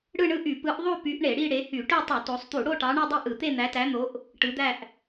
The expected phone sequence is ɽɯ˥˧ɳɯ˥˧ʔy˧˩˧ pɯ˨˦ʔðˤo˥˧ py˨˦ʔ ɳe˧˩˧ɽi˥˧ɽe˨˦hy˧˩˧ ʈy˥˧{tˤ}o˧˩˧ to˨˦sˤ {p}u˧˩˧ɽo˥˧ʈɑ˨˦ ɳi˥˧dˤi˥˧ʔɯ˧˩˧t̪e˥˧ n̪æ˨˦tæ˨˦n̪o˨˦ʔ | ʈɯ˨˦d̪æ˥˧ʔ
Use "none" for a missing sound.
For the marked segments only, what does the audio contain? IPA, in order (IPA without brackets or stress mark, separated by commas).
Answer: tˤ, t̪